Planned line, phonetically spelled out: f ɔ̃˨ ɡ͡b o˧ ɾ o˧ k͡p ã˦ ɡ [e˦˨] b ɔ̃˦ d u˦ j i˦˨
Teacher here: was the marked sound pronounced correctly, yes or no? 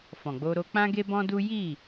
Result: no